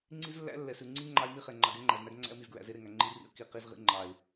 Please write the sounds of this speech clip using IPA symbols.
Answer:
ŋ͡ǀ i˦ z lː æ̰˦ lː ɛ˨ s ʉ˨ ŋ͡ǀ i˦ ŋ͡ǃ ɑ˦ ɪ̯ m i˦ χ e˨ ŋ͡ǃ ɑ˨ ɡ ɛ˦ ŋ͡ǃ æ˨ z n æ˦ ɡ ŋ͡ǀ æ̰˦ ə̯ m i˨ z ɡ ɹ æ̰˨ z e˦ ɾ e˨ ŋ æ˨ ŋ͡ǃ i˦ r ḭ˦ ə̯ k i˨ q i˦ z ʁ ḭ˦ ŋ͡ǃ ɑ˨ ɪ̯

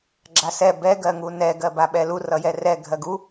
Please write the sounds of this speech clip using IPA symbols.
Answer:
ɡ͡ǁ a s ɛ b ɛ ɡ ɜ ŋ u n ɛ ɡ ɜ b a ɓ ɛ l u r ʌ j ɛ r ɛ ɡʱ ɜ ɡ u

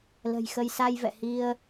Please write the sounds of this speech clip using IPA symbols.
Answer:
l ə̤˨˩ j x ə˧ j s a˧ j v ɛ̰˧˨ h i˧ ə̯

